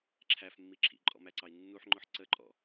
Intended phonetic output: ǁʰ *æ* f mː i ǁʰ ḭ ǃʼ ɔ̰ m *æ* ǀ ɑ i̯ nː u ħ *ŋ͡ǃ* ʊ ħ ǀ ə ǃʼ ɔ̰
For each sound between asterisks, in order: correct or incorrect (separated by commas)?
correct, correct, correct